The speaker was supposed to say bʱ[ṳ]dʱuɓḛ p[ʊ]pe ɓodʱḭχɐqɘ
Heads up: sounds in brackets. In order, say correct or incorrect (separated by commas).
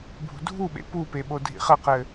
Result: correct, incorrect